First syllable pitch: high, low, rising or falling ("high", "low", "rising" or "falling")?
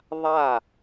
falling